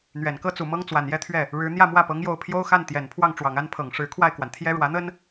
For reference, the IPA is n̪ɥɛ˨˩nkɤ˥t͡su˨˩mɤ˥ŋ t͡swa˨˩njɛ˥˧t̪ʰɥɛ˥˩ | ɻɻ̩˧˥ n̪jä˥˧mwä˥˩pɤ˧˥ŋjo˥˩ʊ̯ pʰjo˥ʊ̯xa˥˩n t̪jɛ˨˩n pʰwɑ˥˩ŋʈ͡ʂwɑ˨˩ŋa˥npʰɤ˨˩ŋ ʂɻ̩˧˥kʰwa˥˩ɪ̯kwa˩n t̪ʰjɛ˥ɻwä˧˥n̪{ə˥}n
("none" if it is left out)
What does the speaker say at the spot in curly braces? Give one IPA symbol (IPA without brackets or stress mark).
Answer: ə˥